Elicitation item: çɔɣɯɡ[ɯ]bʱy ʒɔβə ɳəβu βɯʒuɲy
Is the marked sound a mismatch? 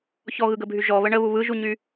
yes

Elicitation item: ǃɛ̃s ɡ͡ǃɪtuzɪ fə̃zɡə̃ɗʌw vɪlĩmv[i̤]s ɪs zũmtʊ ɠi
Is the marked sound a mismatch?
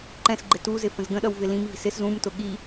no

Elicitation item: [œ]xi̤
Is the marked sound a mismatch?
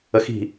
yes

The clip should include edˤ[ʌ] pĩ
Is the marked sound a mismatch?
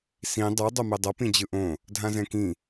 no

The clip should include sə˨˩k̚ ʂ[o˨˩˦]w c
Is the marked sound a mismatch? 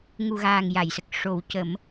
no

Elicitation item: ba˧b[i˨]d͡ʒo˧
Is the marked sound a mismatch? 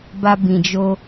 yes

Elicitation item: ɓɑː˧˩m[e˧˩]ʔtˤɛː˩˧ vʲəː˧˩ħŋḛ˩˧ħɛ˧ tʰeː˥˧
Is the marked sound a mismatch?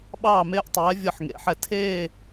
yes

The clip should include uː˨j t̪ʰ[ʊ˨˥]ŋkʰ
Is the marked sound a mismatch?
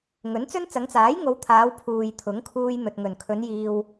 no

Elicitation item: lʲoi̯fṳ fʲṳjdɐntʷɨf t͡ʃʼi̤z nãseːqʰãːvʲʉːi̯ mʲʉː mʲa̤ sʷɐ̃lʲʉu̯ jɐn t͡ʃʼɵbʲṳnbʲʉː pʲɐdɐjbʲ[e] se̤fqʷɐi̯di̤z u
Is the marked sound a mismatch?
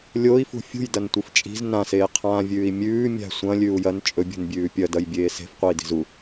yes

